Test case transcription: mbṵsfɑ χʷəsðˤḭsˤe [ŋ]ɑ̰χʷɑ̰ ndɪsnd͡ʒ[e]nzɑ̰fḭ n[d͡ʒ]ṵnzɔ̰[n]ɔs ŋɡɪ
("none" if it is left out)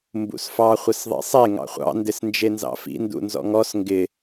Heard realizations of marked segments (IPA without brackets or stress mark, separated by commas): ŋ, e, d, ŋ